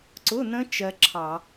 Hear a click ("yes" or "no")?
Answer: yes